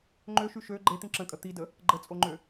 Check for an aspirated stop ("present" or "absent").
absent